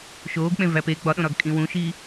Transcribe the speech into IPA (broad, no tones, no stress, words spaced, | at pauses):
ʃoːɡk͡pẽ væpe ɡ͡bɒɗõɾɒɡ kʼĩwũʃiː